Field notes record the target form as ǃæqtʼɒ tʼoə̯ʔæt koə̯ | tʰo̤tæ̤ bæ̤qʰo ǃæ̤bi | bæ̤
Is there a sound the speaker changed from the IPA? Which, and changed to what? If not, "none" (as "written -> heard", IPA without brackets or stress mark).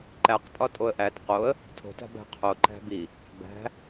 k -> q